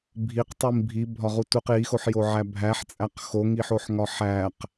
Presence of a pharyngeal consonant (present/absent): present